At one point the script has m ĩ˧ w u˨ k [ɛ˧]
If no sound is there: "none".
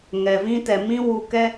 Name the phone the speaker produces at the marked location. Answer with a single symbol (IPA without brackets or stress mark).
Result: ɛ˧